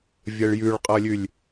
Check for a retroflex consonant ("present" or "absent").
present